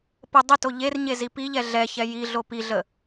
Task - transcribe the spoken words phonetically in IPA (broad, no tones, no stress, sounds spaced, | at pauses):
p ə dˤ ə t o ʎ e r ɲ e z i p i ʎ ɛ ɮ ɛ ç ɛ j i ɮ o p i ɮ ə